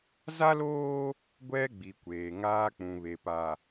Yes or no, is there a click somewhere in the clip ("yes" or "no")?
no